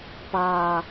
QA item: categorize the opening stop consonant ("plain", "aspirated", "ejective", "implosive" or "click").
plain